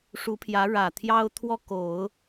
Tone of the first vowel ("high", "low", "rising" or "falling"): rising